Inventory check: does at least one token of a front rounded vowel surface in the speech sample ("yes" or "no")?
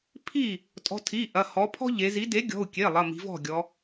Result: no